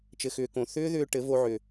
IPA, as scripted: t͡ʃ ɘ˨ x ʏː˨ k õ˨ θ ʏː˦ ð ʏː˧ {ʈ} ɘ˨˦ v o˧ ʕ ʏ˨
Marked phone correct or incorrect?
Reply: correct